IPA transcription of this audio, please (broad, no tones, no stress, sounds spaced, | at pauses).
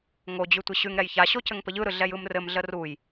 ŋ o d͡ʑ ʉ tʷ i ɕ ʉ ŋ ɾ ɛ j ç a ɕ o c ɘ ŋ p ə ʎ ɯ ɾ ɯ ɮ ɛ j ɯ m r ɘ m ɮ ə r u j